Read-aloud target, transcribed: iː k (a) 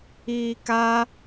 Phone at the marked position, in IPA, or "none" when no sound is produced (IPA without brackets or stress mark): a